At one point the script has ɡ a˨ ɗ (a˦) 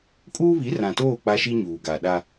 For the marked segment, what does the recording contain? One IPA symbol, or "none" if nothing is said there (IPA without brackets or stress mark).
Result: a˦